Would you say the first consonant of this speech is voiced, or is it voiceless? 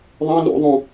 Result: voiced